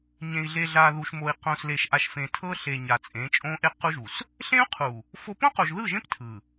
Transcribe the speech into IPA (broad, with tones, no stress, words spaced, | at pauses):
ɲẽ˨i̯ɮe˨ɮa˨ðu˨ʃ mo˨i̯ qõ˨sle˨ʃʔa˨ʃfẽ˨ tʰɤ˦ɬe˨ ɲa˨ t͡sʼẽ˨˦t͡ʃʼõ˦ʔe˦ qu˦ʒu˨s | ɬẽ˦u̯qʰu˨ | fo˦ põ˦qo˨ʒðɯ˦˨ʒẽ˦p tʰɯ˨